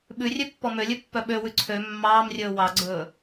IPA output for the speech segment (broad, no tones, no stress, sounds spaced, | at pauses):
ɓ ʉ rʲ ø pː ɔ m ø lʲ ʉ pː œ ɓ ø w ʉ ǀʰ ø mː ɑː m rʲ ɵː w ɑ ɡ͡ǀ ɵː